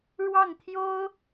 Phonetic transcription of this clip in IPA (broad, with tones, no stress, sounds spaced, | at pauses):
ɻ w ɑ˥˩ ŋ t̪ʰ j o˥ ʊ̯